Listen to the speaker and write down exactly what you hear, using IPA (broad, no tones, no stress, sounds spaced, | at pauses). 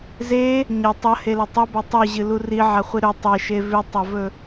z e | ɲ ɐ tˤ ɐ h e l ɐ tˤ ɵ b ɐ tˤ ʉ ʑ ɨ l u r i ʕ a χʷ i ɾ ɵ tˤ e ʃ e v ʉ tˤ ɐ v ɵ